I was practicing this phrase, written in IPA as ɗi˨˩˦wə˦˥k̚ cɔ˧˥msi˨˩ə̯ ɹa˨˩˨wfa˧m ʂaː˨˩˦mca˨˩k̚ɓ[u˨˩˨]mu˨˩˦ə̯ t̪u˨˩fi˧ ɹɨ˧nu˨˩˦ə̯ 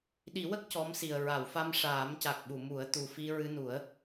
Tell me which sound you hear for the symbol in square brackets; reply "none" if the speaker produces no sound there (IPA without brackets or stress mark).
u˨˩˨